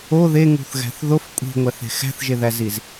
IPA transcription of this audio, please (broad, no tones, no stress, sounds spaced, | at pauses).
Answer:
o ð e ŋ ṳ θ ɣ æ̤ θ ð o f kʷʼ i̤ ŋʷ æ θ e̤ x æ̤ θ ʒ e ð æ z i z